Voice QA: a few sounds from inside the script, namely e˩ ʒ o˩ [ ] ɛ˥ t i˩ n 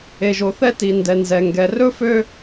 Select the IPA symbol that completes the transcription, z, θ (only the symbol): θ